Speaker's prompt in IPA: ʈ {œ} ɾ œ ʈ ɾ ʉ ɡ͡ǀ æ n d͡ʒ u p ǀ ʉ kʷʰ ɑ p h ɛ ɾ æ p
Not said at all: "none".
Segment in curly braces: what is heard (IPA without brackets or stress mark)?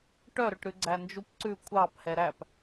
œ